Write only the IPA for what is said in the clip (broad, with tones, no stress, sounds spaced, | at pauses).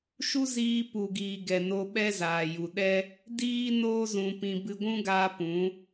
ʃ u˦ z iː˧ p u˨ ɡ iː˨ ɡ ɛ˨ n o˧ ɓ ɛ˦ z aː˨ j u˨ ɗ ɛ˦ | d iː˦ n oː˦ z ũ˧ p ĩ˧ b ɨ˧ ɡʷ ũ˦ ɡ aː˧ p ũ˨˦